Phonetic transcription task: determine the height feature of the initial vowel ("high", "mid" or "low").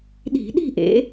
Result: high